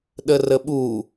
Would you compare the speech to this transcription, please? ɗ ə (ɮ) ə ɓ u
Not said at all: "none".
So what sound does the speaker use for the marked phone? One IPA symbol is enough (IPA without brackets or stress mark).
r